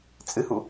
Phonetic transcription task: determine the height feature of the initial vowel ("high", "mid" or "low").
high